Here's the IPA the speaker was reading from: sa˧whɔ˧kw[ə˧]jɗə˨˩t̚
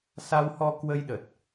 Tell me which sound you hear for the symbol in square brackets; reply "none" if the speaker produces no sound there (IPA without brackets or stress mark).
ə˧